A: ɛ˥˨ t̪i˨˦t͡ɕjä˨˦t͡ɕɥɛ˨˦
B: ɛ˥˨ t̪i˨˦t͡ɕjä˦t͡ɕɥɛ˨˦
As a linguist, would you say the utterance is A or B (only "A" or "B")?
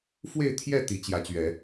A